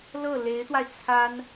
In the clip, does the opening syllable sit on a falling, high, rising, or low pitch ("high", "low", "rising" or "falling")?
falling